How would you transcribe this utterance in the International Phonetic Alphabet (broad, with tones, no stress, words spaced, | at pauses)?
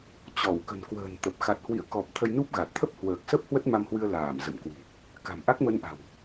t͡ɕɔ˧˩w kə̤˨˩nkwə̤ː˨˩nt̪ə˨˩p̚ xa˨˩t̚hwḭ˧˨ə̯kɔ˨˩p̚ t̪ʰə˧jnu˦˥p̚ɣa˨˩t̚ t̪ʰə˦˥p̚hwəː˨˩k̚sə˦˥p̚ hwə˦˥t̚ma˧mhwɨ˧ə̯ laː˧˩m zə̰˧˨mkwi̤˨˩ | ka̤˨˩mʔa˦˥k̚mə˧nʔa̤˨˩w